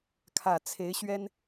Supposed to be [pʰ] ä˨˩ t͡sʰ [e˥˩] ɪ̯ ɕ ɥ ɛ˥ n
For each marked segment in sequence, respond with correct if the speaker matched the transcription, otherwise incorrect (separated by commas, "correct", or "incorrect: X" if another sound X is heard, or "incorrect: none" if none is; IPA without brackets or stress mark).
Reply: incorrect: kʰ, incorrect: e˧˥